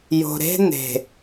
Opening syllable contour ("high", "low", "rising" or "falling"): low